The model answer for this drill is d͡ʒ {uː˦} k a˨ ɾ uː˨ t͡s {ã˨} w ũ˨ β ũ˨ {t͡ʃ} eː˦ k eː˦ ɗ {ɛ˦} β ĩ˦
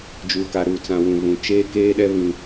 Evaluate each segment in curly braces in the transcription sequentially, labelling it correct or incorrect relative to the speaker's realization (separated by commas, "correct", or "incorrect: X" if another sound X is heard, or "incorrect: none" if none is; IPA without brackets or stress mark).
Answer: incorrect: uː˨, correct, correct, correct